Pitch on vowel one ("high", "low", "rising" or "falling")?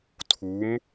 rising